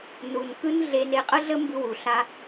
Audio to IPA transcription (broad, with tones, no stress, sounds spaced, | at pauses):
n u˨ n k ɯ˦ n ɮ e˧ n e˧ qʼ ə˦ ɮ ə˦ m b ɯ˦ w u˨ ɬ a˦